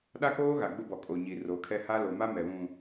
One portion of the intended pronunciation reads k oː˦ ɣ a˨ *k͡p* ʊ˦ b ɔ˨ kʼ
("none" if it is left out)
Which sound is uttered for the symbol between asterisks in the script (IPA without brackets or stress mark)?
ɡ͡b